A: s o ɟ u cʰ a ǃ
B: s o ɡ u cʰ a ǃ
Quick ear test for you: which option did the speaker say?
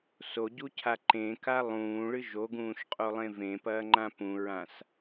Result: A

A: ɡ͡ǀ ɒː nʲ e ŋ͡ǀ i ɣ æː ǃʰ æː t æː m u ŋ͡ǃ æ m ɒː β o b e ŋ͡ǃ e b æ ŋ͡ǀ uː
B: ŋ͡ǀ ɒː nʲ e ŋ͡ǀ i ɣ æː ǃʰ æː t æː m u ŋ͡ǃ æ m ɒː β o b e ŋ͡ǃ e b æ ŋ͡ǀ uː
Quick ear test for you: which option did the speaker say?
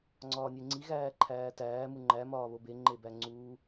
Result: B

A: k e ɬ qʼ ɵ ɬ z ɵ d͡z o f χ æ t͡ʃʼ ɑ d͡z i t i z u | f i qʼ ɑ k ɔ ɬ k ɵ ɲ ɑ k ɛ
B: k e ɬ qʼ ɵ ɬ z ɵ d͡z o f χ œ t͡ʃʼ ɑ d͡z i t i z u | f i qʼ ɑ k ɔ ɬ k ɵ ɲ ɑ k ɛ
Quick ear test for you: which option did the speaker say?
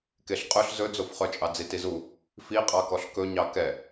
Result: B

